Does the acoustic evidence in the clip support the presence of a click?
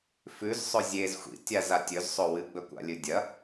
no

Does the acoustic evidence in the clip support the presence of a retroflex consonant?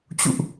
no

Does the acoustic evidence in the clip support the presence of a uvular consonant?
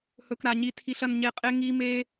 yes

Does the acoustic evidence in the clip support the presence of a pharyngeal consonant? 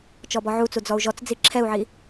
yes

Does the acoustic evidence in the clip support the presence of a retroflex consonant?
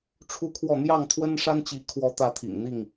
yes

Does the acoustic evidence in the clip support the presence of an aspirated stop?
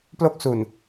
no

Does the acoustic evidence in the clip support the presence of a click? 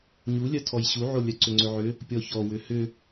yes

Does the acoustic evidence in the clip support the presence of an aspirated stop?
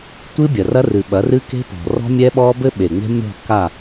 no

